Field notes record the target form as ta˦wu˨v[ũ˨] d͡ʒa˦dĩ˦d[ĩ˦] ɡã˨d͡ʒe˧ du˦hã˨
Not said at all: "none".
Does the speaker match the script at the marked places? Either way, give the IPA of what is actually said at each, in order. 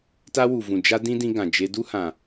ũ˨, ĩ˧

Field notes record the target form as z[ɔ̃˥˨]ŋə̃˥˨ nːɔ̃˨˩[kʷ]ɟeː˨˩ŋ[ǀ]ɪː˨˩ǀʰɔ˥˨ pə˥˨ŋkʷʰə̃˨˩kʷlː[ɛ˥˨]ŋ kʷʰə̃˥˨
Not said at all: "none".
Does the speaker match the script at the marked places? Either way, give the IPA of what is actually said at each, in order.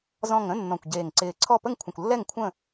ɔ̃˨˩, kʷ, ǀ, ɛ˥˨

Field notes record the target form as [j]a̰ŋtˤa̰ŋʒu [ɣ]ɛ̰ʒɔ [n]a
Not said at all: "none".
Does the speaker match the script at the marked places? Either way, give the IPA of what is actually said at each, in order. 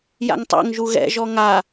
j, ɣ, ŋ

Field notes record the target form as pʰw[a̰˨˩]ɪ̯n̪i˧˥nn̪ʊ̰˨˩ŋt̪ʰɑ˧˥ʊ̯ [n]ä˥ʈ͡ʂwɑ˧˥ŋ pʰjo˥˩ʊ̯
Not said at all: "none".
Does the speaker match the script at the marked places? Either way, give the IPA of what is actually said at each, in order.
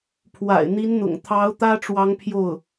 a̰˨˩, t̪

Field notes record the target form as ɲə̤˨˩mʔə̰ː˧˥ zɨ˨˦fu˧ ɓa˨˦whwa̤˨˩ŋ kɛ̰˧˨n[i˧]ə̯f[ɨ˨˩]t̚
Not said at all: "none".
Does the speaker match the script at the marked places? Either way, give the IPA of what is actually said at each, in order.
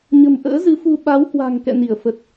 i˧˩, ə˨˩

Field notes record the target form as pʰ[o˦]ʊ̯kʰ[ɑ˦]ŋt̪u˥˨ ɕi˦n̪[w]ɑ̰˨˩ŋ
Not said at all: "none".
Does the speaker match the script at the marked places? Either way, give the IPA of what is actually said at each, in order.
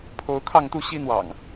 o˨˦, ɑ˥˨, w

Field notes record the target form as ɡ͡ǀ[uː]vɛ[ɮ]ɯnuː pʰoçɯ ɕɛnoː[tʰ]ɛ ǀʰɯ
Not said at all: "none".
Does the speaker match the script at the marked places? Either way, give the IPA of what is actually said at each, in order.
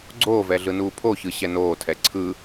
oː, ɮ, tʰ

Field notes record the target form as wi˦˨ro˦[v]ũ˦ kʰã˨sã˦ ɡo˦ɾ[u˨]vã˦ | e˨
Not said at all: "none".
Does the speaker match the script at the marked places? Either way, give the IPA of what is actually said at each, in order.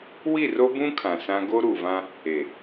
b, u˨

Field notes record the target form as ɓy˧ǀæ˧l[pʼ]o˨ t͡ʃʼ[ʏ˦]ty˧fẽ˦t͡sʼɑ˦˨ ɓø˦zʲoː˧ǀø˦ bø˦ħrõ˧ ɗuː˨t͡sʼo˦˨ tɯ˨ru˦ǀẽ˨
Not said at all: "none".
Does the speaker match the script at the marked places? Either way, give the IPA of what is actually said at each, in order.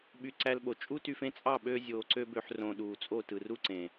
ɓ, u˦

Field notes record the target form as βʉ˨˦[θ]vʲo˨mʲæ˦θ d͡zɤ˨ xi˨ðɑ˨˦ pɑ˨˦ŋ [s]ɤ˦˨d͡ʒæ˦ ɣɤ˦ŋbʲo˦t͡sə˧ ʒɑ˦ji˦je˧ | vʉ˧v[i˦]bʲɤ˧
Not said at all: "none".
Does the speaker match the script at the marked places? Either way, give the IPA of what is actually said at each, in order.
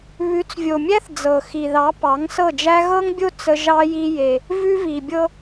t͡s, s, i˨

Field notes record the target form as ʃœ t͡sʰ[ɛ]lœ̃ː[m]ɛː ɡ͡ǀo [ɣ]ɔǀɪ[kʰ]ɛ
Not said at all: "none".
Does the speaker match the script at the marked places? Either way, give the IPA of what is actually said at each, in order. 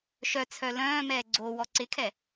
œ, m, w, kʰ

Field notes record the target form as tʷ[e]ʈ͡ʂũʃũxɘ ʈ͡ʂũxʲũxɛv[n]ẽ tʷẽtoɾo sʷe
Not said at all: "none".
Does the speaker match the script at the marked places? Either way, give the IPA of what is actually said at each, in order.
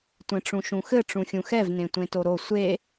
ẽ, n

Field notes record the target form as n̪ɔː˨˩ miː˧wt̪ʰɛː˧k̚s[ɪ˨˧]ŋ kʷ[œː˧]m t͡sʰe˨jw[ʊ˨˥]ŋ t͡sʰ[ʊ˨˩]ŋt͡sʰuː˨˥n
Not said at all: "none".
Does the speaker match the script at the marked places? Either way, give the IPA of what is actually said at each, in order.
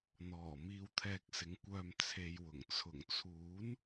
ɪ˨˥, œː˧, ʊ˨˩, ʊ˨˩

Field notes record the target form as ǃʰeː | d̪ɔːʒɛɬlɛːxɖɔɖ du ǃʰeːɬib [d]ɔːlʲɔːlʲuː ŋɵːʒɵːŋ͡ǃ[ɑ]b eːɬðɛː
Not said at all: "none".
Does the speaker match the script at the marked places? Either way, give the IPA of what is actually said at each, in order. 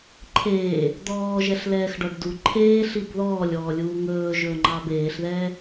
ð, ɑ

